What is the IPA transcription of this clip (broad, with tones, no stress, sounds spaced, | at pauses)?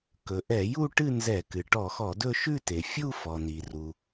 k ɵ˩ ʔ ɛ˧˩˧ j u˥˧ ʈ ɨ˥˧ n z ɛ˧˩˧ k ɨ˩ ʈ ɔ˧˩˧ x ɔ˧˩˧ d ɵ˥˧ ʃ ʉ˥˧ t e˩ fʲ u˥˧ f ɔ˩ n i˩ r u˩